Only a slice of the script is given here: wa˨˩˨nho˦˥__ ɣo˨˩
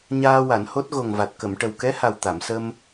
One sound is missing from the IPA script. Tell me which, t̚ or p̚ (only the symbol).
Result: t̚